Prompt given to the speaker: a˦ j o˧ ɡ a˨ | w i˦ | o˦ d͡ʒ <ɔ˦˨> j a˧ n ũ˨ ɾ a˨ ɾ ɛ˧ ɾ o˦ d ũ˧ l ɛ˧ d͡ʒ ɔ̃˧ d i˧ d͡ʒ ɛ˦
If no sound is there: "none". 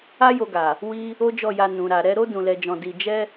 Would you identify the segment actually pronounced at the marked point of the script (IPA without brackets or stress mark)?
ɔ˦˨